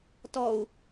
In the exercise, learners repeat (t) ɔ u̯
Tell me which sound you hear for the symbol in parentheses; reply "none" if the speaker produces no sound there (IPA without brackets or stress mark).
t